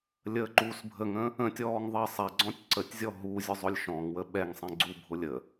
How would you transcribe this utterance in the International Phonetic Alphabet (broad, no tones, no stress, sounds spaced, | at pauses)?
lʲ əː ǃ uː s bʱ ə ŋ ə̃ | ə̃ tʲ ɔː ŋ ðˤ ɜ sˤ ɛ ɡ͡ǀ ɔ̃ tʲ ǀ ə tʲ zʲ ɔ ɦ u zʲ ʊ zˤ ʊ lʲ ʃ ɔ̃ ŋ w ə ɓ ɛ ŋ sˤ ɛ̃ ɡ͡ǀ u bʱ ʊ lʲ ə